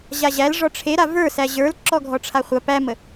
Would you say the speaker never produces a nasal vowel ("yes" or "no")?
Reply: yes